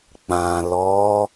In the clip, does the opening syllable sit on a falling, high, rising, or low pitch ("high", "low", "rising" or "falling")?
low